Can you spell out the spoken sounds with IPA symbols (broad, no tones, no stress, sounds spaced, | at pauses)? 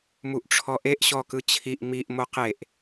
m u ʔ ʈ͡ʂʰ ɔ ʔ e ʔ ɕ ɔ k ɯ t͡ɕʰ i ʔ m i ʔ m o q e ʔ